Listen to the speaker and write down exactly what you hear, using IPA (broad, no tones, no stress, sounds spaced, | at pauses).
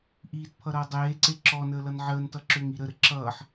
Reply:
ʔ iː t pʰ ʌ ɾ ʌː dˤ eː ǀ e ǁ ɔ n əː l ʌ n ʕ əː n t ʌ ǁ ø ŋ i ɾ ə ɾ ə ǁ ʌː ħ